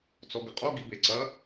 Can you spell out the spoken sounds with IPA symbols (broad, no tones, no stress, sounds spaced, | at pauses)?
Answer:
t͡s ɔ ɡ ɘ qʼ o ɡ i b e ǀ ɐ